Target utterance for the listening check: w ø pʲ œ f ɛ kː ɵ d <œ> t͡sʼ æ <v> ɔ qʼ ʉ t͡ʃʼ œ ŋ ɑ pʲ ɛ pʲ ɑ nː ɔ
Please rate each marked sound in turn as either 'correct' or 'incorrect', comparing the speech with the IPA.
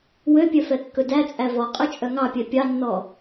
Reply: incorrect: æ, correct

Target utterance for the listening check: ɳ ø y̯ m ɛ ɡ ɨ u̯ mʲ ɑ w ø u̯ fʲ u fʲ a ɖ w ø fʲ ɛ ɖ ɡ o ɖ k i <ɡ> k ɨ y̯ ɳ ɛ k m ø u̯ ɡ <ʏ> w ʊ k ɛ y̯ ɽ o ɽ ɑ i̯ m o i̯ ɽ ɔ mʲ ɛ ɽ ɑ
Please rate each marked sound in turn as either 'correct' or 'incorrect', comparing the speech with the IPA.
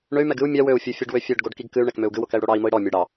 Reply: correct, incorrect: ɨ

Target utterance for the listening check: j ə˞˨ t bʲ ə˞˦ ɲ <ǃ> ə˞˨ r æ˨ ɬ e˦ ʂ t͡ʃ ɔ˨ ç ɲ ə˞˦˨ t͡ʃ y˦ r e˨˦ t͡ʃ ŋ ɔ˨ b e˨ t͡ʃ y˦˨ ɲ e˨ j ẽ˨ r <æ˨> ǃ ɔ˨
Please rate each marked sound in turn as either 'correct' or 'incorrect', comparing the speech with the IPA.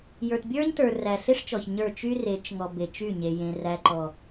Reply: incorrect: t, correct

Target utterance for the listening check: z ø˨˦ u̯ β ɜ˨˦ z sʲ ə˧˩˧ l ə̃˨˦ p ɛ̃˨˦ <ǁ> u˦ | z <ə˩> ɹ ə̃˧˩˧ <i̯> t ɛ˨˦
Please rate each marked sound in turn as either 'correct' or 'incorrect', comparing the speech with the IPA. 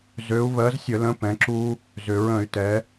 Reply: correct, incorrect: ʏ˩, incorrect: y̯

